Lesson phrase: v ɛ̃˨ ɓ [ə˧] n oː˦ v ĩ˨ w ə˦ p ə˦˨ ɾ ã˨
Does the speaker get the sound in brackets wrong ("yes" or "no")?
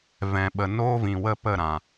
yes